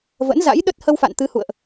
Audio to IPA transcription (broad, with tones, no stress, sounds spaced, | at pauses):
v ə̰˧˥ n z a̰˧˥ j ɗ ə˦˥ t̚ h ə˧ w f a̰˧˨ n t̪ ɨ˨˦ h ṵ˧˨ ə̯ ʔ